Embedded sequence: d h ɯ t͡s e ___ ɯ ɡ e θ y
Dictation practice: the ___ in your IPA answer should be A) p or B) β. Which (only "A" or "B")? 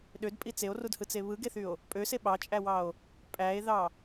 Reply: B